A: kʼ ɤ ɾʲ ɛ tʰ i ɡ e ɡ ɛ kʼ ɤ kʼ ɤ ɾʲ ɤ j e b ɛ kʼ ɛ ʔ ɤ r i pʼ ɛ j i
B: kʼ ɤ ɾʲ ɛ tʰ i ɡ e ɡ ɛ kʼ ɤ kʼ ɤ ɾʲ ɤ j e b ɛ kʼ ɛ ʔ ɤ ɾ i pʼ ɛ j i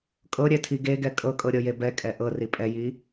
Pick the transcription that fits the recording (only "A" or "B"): A